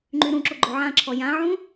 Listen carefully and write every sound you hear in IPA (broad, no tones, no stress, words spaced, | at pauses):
ŋ͡ǃyɾũǁo ɡ͡ǃoʕãǁʰɔ jãʕũ